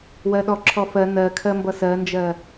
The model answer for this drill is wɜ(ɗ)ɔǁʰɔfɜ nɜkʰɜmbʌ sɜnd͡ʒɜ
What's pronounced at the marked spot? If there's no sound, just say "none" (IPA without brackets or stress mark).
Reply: ɗ